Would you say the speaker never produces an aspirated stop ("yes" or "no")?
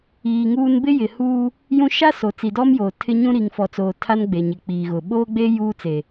no